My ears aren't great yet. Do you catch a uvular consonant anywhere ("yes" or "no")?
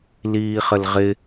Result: yes